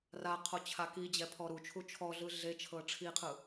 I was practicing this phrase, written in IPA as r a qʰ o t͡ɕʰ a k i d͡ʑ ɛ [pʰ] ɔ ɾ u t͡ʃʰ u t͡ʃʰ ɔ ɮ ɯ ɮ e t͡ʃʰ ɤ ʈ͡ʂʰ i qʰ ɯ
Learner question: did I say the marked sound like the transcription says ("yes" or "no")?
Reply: yes